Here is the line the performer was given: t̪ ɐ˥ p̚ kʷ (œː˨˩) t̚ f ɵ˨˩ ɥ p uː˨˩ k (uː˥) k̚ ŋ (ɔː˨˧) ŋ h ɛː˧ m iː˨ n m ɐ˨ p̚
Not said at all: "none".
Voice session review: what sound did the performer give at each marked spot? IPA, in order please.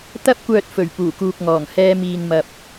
œː˨, uː˨, ɔː˨˩

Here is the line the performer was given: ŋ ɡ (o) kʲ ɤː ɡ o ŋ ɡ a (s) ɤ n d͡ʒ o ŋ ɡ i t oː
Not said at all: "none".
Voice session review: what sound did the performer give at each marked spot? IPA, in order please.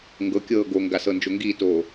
ɤ, s

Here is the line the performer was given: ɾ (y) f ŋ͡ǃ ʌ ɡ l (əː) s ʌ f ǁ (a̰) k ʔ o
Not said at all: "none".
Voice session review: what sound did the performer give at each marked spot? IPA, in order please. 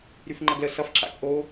y, ə, a̰

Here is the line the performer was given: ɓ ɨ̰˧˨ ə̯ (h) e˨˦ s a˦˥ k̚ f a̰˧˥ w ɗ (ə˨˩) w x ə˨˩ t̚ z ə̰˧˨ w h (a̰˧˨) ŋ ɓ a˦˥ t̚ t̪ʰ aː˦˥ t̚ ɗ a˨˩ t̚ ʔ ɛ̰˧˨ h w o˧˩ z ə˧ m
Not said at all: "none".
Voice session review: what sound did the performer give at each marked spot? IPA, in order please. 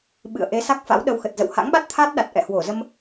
ʔ, ə˧, a̰˧˥

